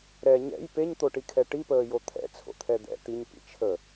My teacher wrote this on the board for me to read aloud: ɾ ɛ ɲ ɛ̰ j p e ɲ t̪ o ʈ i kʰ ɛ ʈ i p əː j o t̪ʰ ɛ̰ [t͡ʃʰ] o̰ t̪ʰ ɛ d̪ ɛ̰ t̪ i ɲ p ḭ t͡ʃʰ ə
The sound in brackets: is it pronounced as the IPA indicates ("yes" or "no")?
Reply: no